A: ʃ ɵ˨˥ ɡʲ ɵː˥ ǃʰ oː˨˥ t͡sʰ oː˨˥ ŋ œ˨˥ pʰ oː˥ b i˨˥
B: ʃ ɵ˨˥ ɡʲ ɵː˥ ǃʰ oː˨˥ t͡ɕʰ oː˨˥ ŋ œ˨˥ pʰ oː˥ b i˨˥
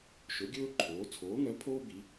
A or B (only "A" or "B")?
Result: A